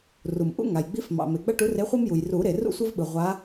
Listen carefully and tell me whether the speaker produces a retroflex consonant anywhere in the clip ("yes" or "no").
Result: yes